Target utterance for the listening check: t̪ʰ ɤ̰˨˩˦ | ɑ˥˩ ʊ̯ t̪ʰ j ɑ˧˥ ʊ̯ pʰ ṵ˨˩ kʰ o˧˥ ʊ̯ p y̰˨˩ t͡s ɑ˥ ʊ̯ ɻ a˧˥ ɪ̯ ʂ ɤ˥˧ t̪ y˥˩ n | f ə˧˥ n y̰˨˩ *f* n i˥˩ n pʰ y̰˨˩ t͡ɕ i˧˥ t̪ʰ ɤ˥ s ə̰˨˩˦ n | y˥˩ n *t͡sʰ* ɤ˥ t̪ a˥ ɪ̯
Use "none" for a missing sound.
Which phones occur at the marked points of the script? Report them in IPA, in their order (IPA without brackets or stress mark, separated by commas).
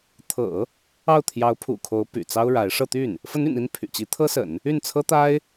none, t͡sʰ